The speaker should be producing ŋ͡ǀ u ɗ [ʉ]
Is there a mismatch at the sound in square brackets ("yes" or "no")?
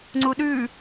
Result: no